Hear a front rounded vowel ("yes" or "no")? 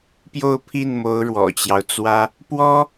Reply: no